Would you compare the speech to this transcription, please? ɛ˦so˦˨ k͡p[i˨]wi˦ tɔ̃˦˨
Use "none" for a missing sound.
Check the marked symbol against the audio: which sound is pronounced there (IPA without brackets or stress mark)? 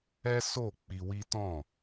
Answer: i˧